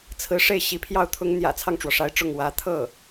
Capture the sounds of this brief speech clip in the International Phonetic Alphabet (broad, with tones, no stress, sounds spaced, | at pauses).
t͡sʰ ɹ̩˧˥ ʂ e˥˩ ɪ̯ ɕ i˧˥ pʰ j ɑ˥˩ ʊ̯ t̪ʰ ʊ˥ ŋ n̪ j ä̰˨˩ t͡sʰ ɑ˥˩ ŋ ʈ͡ʂ w ɔ˩ ʂ a˧˥ ɪ̯ ʈ͡ʂ ʊ˥˩ ŋ w ä˧˥ t̪ʰ ɤ˥˩